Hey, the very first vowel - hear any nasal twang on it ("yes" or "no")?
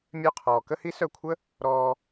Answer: no